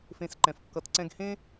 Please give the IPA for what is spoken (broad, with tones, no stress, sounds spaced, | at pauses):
f ẽ˥ s ǃ ɛ̃˦ f kː ʌ˥ t ǀ ɛ̃˦ ɡ h ẽ˥